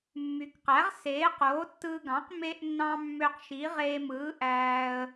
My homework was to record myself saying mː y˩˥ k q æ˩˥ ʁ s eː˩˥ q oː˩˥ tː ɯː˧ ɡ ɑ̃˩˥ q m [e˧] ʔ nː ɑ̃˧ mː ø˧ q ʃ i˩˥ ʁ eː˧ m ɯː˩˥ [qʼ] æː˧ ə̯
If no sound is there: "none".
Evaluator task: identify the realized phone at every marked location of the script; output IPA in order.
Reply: e˧, ʔ

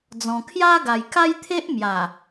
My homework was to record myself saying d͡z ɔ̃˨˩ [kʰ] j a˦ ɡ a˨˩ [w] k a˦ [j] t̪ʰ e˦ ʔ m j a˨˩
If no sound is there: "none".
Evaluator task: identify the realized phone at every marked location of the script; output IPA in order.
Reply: kʰ, j, j

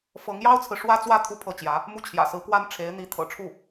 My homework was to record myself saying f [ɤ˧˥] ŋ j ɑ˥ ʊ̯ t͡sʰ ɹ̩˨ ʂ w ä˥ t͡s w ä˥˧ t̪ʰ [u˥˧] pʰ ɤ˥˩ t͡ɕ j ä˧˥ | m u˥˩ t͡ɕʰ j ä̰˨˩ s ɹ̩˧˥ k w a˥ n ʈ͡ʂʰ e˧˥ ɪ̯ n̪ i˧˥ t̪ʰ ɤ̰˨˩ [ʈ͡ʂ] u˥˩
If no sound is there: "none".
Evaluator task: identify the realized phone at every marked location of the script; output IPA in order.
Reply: ɤ˧˥, u˥˧, ʈ͡ʂʰ

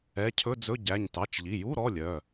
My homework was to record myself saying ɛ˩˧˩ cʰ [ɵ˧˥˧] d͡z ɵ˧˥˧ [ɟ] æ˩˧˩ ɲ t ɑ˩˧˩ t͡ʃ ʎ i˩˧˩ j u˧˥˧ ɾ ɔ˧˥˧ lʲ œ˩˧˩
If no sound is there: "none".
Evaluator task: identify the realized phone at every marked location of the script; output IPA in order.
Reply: ɵ˧˥˧, ɟ

